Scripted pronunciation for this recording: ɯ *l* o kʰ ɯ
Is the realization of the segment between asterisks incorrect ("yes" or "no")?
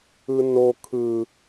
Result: yes